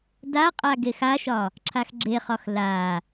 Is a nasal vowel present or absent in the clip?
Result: absent